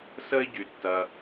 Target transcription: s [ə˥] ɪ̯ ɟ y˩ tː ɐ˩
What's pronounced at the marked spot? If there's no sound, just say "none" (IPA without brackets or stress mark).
ə˥